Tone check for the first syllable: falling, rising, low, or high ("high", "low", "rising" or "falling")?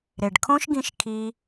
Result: low